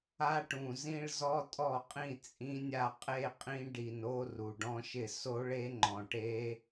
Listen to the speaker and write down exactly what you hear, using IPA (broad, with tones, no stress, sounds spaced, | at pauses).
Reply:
a˦˥ ʈ ũ˨˩ z ĩ˥˧ ɭ z ɔ˦˥ tʼ ɔ˥˩ qʼ ĩ˥˩ t͡sʼ ĩ˦˥ nʲ a˥˧ qʼ e˥˧ qʼ ĩ˦˥ ɖ i˨˩ n o˥˧ r u˨˩ ɖ ɔ̃˦˥ ʃ ɪ˥˩ s o˦˥ ɭ e˦˥ ŋ͡ǃ ɔ̃˨˩ ʈ e˦˥